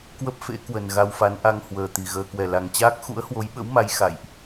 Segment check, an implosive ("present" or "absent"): present